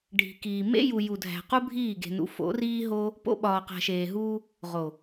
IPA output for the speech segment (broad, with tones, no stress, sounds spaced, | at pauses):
ɖʱ i̤˨ k iː˨ m ḛ˦ j u˨ j u˨ dʱ æ̤˨ q u˦ bʱ iː˦˨ ɡ e̤˨ n ṵ˨˦ f o̰˨˦ r iː˦ ɦ o˦ | p o̰˧ ɓ ɒː˨ q æ̤˨ ʃ eː˨ ɦ uː˧ | ʁ o˨